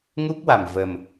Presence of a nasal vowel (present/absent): absent